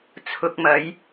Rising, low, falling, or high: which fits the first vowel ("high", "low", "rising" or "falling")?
low